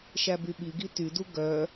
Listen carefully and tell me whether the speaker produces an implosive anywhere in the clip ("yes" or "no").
yes